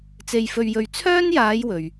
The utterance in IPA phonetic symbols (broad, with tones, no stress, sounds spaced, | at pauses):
t͡s e˧ j f ɵ˧ ɥ j ɵ˧ ɥ t͡sʰ œː˥ n j aː˨˧ j w ɵ˨ ɥ